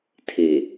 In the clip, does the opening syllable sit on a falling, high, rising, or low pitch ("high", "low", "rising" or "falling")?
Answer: low